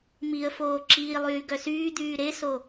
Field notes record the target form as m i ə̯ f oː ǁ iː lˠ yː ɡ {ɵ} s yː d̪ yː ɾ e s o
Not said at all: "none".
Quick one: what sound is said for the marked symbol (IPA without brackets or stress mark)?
œ